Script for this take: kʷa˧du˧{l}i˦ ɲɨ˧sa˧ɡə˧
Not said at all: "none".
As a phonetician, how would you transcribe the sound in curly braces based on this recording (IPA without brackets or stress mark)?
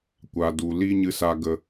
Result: l